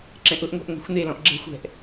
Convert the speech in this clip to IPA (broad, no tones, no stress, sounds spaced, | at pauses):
ǁ ɛ̃ ʔ ʊ ʔ ŋʷ e̤ ʔ ŋʷ ɛ̤ xʷ n e l ɔ̃ ʔ ɡ͡ǁ ɛ̤ xʷ ɛ̤ ʔ